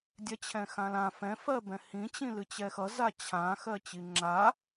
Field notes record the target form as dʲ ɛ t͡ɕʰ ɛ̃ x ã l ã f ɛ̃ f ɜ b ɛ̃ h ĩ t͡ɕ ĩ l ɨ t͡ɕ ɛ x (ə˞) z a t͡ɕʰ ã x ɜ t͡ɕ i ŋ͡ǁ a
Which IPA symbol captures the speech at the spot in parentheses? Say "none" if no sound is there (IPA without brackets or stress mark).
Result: ʌ